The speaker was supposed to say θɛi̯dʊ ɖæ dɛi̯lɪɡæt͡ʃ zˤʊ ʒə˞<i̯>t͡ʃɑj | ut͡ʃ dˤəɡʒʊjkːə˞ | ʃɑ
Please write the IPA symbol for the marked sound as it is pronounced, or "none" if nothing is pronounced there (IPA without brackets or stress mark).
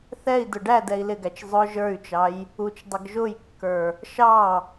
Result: y̯